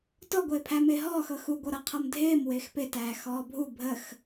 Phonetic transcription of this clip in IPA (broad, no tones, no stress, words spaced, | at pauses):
tɔɡʷɪːpʰæ mɪːɦɔːx ɤxu ɡʷɤɾɤqʰɤmdʱɪːm wɪːxpɪtæː xɔːbʱu bʱəx